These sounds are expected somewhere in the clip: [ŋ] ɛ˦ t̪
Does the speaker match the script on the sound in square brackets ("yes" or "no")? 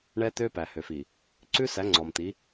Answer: no